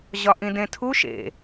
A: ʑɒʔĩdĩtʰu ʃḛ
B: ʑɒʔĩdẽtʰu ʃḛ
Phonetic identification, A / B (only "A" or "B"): B